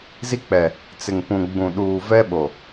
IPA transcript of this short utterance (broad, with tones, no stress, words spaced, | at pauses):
zi˦k͡pɛ˨ | t͡sɪ˨ŋpũ˨ ɡ͡bũ˨ɗuː˨vɛ˦ ɓo˨